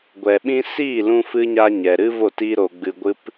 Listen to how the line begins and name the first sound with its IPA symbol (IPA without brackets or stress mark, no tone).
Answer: ɡʷ